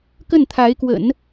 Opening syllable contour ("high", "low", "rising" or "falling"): falling